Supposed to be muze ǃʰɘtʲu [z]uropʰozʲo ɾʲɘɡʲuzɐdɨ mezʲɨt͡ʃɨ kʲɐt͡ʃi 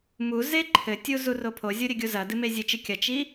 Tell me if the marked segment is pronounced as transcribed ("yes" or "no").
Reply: yes